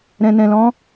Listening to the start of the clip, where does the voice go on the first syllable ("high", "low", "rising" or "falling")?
low